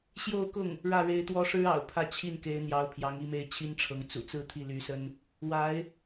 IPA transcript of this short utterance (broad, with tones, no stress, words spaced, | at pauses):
ɕjo˥˧ʊ̯kʊ˥˩ŋ | ɻä˥˩ɻe˧˥ɪ̯t̪wɔ˥ ʂɻ̩˥ɑ̰˨˩ʊ̯ pʰä˥˧t͡ɕʰi˥˩nke˧˥ɪ̯n̪jɑ˧˥ʊ̯ pʰjɑ˧˥ŋi˥˧me˥˩ɪ̯ t͡ɕʰi˥nʈ͡ʂʰɤ˧˥ŋ t͡sṵ˨˩t͡sɹ̩˥˧ t̪ʰi˥˩ly˧˥sə˥n | wa˧˥ɪ̯